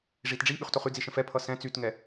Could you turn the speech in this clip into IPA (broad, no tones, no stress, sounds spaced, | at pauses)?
ʐ i t ɖ͡ʐ i ɓ y χ t o χ y d͡z i ʃ ə̃ f ɛ pʰ ʌ s ɛ̃ t͡s y t ŋ ɛ